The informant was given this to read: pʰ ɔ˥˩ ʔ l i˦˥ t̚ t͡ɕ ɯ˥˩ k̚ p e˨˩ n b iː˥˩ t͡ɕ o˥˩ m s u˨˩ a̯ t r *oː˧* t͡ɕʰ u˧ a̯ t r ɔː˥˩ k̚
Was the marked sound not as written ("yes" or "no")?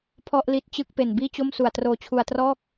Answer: no